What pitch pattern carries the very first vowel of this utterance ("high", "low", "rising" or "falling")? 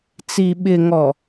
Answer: low